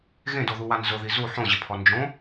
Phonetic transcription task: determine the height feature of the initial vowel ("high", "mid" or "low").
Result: mid